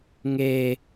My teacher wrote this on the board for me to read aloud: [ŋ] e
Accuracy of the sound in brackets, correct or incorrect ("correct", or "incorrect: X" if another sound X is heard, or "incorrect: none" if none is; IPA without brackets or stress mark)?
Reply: correct